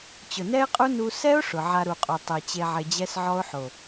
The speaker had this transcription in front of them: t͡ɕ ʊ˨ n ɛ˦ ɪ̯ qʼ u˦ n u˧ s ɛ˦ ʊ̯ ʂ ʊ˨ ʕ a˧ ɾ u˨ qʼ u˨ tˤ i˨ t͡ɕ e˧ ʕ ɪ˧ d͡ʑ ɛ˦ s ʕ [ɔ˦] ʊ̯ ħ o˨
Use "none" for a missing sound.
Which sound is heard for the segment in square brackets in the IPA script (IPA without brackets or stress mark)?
ɔ˦